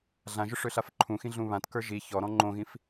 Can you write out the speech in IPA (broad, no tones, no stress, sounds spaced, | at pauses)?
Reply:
ɮ ã ʒ ʏ ʂ ø ɬ a f ǃʰ ũ x ĩ ɮ ũ β ã t k ə˞ ʒ i ç ɔ ɾ ɔ̃ ŋ͡ǃ õ ɣ ĩ f